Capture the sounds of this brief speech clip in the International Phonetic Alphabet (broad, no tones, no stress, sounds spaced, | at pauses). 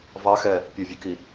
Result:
v ɑ x ɛ | pʲ o vʲ ø k i